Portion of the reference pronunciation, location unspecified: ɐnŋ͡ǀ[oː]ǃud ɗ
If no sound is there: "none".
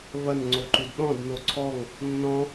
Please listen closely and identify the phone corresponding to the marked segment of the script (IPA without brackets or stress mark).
o